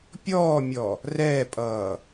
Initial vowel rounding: rounded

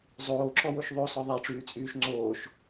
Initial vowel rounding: rounded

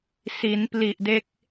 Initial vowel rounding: unrounded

